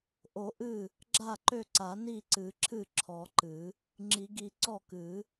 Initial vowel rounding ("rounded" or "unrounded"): rounded